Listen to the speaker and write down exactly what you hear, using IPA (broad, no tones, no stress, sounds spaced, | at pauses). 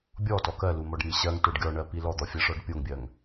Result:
bʲ ɔ t ɔ k ɜ l u m ɔ ɖ m i ɕ ɜ ŋ t o ɖ ɡʲ ɔ ɳ ɜ p i l ɔ d̪ ɔ fʲ ɜ ʂ ɔ ɖ pʲ o ŋ bʲ ɜ ŋ